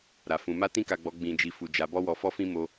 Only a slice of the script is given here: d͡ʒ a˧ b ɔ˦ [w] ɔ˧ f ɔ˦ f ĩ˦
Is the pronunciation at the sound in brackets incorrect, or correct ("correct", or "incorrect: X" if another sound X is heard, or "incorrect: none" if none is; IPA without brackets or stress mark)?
correct